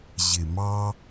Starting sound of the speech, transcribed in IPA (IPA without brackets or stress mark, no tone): ʑ